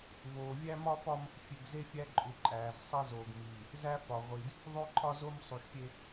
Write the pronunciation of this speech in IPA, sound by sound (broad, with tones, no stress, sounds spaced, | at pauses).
v oː˨ vʲ æ˦ m ɒ˦ f ɒ˦ m | fʲ e˨ ɡ z e˦ fʲ æ˦ ǃʼ u˨ ǃʼ æː˨ z sˤ e˦ z oː˨ ɡ m iː˨ | z æ˦ f ɒ˨ ʁʷ i˨ d | ðˤ o˦ ǃʰ ɒ˦ z o˦ m sˤ u˨ ʃ pʲ e˦